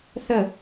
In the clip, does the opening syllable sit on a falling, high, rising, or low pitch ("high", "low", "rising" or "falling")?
falling